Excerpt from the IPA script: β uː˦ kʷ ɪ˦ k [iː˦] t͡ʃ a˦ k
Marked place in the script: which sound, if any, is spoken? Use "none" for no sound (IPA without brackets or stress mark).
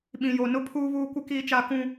iː˦